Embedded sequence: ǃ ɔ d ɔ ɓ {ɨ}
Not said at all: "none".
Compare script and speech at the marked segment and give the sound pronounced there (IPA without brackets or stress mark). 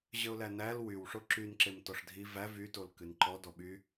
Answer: y